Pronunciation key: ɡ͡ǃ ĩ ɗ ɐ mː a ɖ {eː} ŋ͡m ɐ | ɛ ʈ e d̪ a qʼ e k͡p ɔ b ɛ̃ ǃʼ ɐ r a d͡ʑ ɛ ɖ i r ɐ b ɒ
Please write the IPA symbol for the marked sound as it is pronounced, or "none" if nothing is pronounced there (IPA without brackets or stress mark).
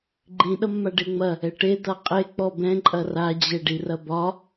e